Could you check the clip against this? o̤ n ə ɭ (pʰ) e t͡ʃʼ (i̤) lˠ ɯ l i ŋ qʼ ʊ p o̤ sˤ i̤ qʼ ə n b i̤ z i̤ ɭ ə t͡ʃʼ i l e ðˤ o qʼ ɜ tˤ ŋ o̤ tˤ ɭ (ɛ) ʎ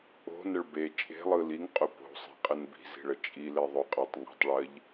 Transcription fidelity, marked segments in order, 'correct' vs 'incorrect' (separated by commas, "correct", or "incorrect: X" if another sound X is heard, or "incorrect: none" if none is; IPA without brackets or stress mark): incorrect: b, incorrect: e̤, incorrect: ɜ